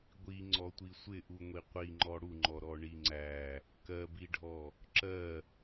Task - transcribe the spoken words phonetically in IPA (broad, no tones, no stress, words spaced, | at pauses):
ɡʷi ŋ͡ǀɔtʷisʷɪʔu ŋʷiqʷi ŋ͡ǃɔɽuŋ͡ǃɔ ɾɔɳiŋ͡ǀæ | kɜbiɖʱɔ | ǁɜ